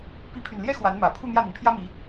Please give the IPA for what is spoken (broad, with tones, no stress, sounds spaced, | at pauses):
p i˧˥ pʰ y˨˩ n l j ɛ˥ x w a˧˥ n m ä˨˩ pʰ u˥˧ n̪ j ä˥˩ n̪ i˩ n pʰ j ä˥ m i˧˥